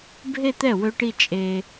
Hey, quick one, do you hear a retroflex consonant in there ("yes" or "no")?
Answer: yes